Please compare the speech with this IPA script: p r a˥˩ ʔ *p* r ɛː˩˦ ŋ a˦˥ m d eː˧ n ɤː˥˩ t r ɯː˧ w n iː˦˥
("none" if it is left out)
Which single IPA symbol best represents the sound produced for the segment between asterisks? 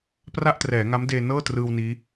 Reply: t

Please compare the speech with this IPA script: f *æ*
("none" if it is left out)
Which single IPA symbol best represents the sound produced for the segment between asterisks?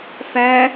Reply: æ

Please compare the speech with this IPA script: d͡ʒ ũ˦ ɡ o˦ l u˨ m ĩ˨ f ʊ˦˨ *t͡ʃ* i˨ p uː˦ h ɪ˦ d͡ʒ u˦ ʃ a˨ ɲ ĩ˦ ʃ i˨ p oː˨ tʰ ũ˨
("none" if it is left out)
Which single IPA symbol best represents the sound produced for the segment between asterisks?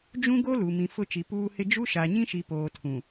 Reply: t͡ʃ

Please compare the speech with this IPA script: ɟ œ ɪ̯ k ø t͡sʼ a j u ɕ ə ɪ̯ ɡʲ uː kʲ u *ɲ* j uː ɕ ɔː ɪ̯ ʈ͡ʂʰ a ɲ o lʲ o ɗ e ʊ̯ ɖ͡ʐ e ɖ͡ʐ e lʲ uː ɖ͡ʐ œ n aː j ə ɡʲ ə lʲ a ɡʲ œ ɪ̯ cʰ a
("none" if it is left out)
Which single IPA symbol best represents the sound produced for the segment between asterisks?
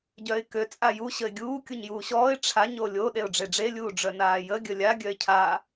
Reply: ɲ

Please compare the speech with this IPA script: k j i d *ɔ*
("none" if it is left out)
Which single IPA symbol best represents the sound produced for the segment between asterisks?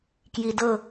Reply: ɤ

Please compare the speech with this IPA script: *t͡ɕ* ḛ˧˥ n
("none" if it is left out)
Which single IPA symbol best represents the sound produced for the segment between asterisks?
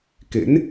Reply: k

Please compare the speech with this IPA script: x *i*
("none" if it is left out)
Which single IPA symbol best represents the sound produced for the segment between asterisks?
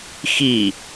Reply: i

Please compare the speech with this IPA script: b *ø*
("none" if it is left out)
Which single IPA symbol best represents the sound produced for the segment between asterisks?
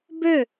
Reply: ø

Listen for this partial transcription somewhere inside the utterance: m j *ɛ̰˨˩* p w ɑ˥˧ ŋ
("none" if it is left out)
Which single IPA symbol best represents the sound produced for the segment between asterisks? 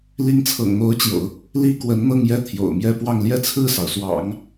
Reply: ɛ˥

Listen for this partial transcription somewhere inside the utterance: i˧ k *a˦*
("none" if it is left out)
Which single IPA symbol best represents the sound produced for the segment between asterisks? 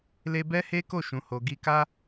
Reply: a˦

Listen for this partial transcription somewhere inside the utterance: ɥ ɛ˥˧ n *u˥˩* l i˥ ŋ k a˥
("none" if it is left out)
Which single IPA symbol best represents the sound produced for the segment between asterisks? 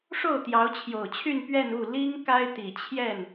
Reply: u˥˩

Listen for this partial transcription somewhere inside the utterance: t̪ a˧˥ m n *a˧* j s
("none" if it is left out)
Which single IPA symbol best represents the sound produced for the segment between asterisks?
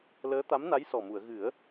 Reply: a˧˥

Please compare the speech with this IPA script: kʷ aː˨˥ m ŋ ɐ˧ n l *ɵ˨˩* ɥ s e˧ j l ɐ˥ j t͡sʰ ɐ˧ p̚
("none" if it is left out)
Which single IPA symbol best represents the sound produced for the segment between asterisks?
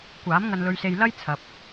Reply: ɵ˧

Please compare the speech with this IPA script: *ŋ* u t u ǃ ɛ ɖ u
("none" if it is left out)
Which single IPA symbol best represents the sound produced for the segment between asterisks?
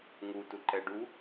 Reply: ŋ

